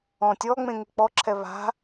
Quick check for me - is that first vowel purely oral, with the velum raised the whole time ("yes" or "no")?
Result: no